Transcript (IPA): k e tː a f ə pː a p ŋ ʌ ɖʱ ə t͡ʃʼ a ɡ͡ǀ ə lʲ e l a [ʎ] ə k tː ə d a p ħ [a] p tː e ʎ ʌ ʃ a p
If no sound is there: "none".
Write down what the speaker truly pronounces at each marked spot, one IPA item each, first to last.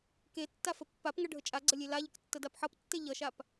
ʎ, ʌ

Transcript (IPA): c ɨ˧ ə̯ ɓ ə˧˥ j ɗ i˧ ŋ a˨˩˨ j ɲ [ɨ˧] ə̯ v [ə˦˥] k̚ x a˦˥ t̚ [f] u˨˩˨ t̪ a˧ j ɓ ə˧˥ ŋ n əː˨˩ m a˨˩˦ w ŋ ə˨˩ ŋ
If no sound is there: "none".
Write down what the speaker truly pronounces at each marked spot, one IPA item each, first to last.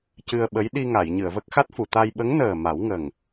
ɨ˨˩˨, ə˦˥, f

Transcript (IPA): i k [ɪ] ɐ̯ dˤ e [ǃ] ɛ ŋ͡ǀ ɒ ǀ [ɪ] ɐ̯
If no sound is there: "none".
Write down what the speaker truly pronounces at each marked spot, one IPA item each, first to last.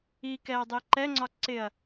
ɛ, ǃ, ɪ

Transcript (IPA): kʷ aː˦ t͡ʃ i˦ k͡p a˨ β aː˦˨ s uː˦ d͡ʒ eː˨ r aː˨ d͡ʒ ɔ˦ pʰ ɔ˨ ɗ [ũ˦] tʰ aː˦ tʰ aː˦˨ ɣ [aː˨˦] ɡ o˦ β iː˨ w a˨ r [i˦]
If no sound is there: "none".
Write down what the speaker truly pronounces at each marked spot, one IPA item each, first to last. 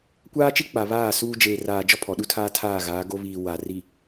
u˦, aː˨˦, i˨

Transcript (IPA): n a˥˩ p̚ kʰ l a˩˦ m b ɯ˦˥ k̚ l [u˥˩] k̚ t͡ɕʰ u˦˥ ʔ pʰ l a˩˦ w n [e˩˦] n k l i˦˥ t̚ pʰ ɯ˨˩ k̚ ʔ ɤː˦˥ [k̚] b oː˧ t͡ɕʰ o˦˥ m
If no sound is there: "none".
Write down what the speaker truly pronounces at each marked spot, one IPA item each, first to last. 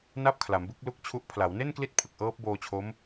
u˥˩, e˥˩, p̚

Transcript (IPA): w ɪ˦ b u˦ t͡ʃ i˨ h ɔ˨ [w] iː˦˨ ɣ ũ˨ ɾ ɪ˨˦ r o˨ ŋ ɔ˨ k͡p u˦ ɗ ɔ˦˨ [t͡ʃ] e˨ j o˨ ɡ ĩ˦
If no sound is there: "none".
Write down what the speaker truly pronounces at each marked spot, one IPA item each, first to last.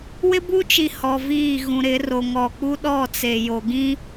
v, t͡s

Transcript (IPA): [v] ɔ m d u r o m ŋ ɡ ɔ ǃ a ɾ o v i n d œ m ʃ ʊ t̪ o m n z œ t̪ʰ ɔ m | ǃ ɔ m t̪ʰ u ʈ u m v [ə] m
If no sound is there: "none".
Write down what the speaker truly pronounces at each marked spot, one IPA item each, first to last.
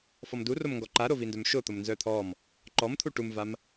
f, a

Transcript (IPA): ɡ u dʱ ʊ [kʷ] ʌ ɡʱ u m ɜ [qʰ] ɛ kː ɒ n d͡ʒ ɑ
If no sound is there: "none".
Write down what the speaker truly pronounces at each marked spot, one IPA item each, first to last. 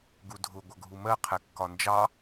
ɡʷ, qʰ

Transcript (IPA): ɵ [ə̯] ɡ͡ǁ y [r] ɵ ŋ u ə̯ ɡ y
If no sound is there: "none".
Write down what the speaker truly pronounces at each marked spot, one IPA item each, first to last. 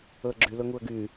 ə̯, l

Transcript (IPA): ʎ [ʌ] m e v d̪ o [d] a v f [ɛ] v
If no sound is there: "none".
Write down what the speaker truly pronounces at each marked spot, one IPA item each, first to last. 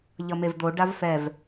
ʌ, ɖ, ɛ

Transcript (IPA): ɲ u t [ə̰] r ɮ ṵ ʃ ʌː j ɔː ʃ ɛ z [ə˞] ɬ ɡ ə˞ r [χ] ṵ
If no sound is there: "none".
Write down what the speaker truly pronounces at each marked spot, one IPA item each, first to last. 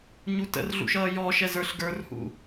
ə̰, ə˞, h

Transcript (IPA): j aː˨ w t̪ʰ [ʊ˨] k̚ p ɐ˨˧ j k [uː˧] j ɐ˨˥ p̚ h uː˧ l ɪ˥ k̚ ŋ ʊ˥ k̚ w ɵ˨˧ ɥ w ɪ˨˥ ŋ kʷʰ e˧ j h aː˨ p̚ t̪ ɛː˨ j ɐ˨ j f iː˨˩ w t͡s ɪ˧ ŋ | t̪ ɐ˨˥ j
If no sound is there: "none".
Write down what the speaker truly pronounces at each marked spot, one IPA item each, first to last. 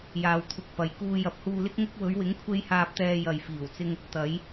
ʊ˨, uː˧

